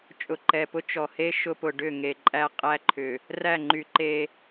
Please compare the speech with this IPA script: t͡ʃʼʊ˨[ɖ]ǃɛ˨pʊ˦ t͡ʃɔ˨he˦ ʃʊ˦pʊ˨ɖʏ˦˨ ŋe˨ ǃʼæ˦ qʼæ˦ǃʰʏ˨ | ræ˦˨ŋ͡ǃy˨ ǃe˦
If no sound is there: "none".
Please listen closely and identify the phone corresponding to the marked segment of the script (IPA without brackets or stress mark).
none